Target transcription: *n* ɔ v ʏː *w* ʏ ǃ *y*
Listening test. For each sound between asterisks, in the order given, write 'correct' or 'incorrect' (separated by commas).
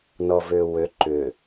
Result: correct, correct, incorrect